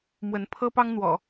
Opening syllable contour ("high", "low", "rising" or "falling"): rising